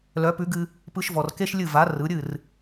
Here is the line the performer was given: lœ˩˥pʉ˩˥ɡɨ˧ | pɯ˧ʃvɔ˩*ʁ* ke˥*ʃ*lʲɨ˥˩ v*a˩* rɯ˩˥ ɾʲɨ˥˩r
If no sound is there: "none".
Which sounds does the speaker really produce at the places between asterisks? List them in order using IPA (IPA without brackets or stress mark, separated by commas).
r, ʃ, a˩˥